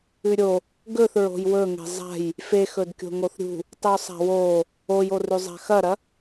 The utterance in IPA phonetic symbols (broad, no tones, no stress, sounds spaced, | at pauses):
ʉ ɾʲ o | ɡ ɵ θ ɹ o̤ j w ɵ ŋ e̤ zˤ a̤ j | f e x ɵ d kʲ o̤ ŋ o θ ɾʲ ṳ | tˤ ʉ sˤ a̤ w o | o j o r ʉ zˤ a̤ x ɐ ɾ ɐ